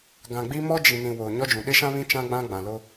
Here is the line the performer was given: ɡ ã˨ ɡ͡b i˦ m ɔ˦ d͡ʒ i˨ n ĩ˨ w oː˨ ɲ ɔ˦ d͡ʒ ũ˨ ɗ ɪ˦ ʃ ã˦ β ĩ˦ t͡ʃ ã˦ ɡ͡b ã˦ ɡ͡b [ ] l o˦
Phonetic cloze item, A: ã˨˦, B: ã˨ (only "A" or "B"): B